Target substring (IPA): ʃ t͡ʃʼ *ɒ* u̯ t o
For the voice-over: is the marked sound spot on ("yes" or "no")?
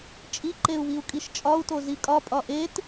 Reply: yes